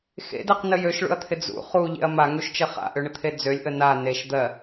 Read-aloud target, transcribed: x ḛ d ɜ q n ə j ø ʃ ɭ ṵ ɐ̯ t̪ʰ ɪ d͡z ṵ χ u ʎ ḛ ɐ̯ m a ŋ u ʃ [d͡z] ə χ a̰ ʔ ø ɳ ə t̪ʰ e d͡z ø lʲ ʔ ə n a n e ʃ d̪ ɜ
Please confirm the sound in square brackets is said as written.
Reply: no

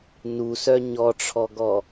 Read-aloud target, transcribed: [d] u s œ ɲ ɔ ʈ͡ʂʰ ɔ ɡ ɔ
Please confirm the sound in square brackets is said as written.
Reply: no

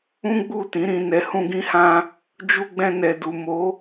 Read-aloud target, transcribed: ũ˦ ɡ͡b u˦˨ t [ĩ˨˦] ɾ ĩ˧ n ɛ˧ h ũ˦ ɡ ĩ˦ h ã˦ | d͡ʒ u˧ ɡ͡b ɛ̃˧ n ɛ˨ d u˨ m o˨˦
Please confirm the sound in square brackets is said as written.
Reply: yes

